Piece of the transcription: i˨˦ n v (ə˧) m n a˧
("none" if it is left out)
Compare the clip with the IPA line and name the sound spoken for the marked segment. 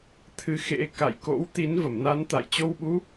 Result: ə˧˩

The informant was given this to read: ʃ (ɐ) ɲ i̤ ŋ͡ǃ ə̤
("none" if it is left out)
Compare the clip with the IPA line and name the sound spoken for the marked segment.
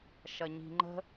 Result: ɐ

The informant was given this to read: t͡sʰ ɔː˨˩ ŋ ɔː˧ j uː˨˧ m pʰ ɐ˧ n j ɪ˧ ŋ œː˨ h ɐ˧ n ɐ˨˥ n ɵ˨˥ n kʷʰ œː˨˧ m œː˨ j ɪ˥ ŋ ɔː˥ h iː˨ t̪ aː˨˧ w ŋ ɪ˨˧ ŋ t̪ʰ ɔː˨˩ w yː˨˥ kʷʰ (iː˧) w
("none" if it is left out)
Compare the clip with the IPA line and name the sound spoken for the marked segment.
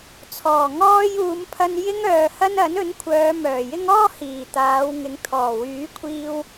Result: iː˧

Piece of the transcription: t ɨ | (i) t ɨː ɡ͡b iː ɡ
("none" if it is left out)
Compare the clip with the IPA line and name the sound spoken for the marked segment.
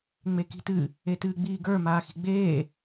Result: e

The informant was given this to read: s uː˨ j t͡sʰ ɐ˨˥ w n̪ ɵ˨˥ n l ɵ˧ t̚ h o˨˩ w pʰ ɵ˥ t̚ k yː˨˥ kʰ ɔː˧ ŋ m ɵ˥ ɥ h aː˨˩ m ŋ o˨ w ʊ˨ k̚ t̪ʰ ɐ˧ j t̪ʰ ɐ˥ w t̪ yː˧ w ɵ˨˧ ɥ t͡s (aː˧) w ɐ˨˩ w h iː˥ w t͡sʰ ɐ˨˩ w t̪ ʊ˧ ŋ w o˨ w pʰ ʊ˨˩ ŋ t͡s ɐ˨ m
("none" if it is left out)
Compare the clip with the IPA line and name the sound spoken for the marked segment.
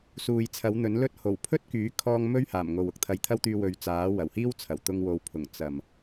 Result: aː˨˥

